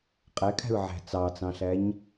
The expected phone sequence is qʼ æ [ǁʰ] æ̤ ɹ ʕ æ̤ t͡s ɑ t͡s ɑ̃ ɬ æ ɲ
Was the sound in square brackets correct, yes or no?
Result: no